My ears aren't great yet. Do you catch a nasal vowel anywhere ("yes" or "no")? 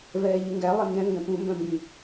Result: yes